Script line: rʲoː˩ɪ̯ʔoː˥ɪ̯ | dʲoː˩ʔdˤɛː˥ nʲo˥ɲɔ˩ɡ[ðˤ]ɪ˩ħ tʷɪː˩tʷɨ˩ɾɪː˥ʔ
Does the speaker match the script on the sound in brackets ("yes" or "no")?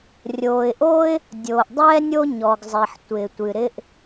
no